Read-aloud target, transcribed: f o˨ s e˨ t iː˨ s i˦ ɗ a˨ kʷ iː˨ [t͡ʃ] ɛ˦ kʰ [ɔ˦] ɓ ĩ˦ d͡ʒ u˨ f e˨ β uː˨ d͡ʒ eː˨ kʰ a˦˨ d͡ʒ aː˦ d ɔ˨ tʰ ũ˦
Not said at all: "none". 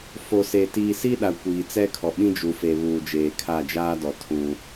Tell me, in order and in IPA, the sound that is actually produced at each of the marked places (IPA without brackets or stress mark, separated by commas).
t͡s, ɔ˨